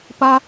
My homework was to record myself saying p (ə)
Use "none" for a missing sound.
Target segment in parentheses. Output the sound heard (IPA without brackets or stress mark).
a